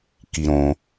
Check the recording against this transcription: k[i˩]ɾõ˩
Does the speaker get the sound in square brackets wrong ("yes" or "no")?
no